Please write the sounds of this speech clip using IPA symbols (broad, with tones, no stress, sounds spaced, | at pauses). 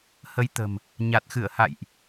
h ə˨˦ j t̪ ə̤˨˩ m | ɲ a˨˩ t̚ x ɨ˧˩ ə̯ h a̰˧˨ j ʔ